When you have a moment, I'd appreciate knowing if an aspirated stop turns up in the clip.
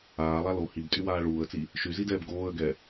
no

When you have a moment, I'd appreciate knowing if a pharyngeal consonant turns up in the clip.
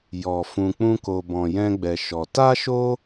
no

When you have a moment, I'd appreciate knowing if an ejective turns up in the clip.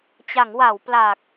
no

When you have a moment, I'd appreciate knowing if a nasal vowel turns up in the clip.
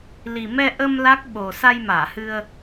no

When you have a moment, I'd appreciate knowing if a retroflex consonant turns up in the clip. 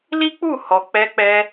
no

